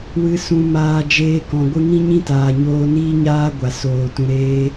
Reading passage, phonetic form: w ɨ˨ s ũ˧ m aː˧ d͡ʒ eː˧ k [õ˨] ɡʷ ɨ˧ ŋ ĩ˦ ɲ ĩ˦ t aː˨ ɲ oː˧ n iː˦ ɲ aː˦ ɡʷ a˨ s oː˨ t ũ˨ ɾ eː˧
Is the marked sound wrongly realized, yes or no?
yes